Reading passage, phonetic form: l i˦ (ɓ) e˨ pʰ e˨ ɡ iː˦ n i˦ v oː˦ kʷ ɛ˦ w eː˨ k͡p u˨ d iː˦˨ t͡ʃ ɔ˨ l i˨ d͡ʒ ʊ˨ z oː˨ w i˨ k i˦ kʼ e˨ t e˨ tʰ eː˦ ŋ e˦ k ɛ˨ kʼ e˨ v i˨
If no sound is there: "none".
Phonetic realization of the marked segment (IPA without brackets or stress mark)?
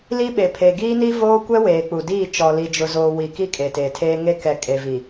ɓ